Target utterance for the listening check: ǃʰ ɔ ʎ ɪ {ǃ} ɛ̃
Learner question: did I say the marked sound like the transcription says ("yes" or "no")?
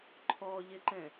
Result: yes